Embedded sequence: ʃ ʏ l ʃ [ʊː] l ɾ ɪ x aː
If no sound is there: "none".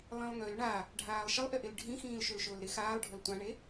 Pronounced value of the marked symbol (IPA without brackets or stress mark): ʊː